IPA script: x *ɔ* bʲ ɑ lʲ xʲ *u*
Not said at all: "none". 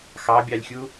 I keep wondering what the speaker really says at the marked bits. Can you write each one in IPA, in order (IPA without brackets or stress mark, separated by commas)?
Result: ɑ, u